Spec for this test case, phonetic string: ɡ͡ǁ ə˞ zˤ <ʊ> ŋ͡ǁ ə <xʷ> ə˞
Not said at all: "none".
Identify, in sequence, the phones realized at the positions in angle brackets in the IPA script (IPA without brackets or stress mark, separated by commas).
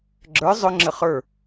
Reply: ʊ, χ